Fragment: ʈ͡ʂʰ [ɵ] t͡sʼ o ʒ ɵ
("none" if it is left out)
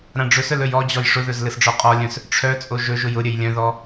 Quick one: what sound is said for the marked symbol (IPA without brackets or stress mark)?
œ